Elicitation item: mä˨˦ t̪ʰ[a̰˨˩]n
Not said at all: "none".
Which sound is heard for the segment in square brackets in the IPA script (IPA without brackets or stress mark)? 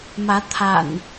a̰˨˩